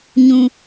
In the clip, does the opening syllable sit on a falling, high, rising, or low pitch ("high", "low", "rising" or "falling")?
low